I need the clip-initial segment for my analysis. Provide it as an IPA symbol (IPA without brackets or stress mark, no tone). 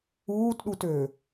uː